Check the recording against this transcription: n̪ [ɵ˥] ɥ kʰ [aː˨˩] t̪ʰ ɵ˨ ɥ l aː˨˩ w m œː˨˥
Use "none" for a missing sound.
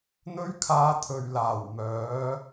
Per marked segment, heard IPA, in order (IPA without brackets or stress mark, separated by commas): ɵ˥, aː˧